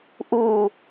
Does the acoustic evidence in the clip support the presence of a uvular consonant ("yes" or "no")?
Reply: no